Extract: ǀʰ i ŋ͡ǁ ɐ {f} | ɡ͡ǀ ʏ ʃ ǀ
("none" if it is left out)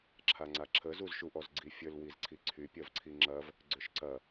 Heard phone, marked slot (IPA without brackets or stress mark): v